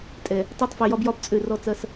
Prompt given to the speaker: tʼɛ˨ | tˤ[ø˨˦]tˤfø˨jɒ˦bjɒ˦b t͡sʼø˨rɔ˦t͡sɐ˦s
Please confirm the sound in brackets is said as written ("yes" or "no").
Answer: no